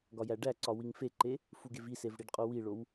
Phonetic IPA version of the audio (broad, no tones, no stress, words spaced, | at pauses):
ɡɒjæɖæǀɒ wiŋfeǃe | fuɡevisev ɽiɖqʼowiɭow